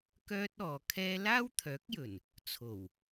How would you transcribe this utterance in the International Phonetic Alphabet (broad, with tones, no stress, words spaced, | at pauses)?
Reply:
kœː˥t̚ɔː˨kʰɛː˥ laː˥wt̪ʰœː˨˥k̚jɵ˨˩n | t͡sʰo˨˩w